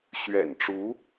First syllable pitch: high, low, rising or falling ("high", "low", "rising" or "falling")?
low